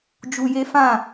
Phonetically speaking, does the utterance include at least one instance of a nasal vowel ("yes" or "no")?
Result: yes